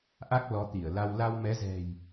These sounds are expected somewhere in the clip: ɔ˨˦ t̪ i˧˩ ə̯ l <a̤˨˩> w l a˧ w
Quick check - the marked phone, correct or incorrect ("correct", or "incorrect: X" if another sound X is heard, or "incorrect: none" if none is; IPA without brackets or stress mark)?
incorrect: a˧